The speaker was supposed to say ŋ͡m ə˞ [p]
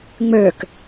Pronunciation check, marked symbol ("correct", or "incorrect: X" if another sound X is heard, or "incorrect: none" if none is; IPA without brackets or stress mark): incorrect: k